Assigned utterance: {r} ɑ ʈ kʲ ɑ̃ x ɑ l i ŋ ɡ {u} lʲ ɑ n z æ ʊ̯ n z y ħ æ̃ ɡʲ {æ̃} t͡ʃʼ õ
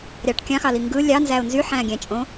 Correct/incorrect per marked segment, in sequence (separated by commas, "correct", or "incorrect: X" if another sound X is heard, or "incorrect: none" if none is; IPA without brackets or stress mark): incorrect: ɾʲ, incorrect: ɯ, correct